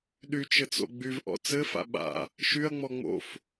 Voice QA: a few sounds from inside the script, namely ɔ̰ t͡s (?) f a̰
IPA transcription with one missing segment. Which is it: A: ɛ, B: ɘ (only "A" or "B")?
B